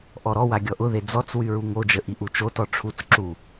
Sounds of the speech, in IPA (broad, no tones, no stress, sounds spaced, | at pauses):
ʔ ɔ ɾ ɔ w a ɡʲ ɔ ʔ ʊ ð e d͡z ɔ t͡s w y ɹ u ŋ o d͡ʒ ə ʔ i ʔ u t͡ʃ o t ɔ ʈ͡ʂʰ u t͡s ǁ u